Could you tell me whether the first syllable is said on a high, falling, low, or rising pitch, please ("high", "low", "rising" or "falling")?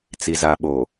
low